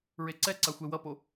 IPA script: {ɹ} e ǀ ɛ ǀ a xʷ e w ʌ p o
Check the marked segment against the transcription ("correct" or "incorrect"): correct